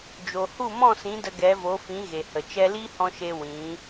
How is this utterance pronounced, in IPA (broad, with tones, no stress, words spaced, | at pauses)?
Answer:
d͡ʒo˨hu˦˨ mɔ̃˦˨sĩ˨˦ də˧ɡɛ˨˦vo˨˦ fĩ˨˦ɣe˨hə˨ t͡ʃɛ˧liː˦hɔ̃˧ʃe˧ wĩ˨˦